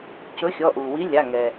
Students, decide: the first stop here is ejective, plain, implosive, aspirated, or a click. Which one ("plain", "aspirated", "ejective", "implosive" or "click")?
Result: plain